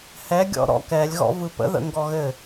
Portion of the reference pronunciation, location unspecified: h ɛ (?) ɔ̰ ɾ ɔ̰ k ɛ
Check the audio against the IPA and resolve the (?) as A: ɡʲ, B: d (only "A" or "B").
A